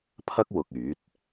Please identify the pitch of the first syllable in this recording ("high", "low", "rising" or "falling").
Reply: high